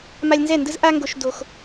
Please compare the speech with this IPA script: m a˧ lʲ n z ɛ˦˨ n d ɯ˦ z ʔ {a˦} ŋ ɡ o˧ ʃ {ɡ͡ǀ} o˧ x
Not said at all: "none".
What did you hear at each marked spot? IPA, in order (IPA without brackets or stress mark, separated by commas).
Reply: a˦, d